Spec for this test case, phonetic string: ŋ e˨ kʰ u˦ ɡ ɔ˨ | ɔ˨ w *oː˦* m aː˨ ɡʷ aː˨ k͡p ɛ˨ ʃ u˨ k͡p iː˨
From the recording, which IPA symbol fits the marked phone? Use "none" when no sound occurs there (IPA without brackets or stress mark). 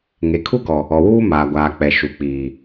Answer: uː˦